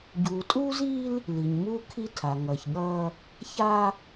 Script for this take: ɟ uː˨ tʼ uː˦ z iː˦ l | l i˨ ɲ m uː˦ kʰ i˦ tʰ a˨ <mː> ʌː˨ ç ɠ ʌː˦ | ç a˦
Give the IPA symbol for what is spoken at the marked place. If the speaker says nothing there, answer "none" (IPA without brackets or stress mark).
ŋ